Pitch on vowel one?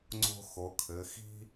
high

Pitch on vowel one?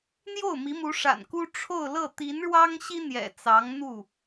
falling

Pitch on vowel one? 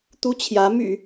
high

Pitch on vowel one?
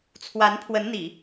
rising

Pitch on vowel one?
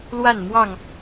falling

